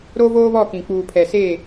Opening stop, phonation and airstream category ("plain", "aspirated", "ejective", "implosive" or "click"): plain